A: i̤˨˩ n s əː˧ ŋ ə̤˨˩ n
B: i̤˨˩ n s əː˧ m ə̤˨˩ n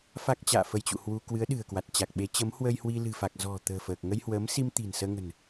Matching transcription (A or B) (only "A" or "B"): A